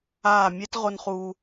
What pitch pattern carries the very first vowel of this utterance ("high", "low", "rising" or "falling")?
falling